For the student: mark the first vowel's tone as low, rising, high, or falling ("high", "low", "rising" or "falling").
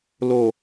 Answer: low